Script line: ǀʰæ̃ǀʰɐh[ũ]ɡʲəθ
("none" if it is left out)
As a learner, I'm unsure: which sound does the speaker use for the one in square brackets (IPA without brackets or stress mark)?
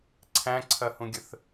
ũ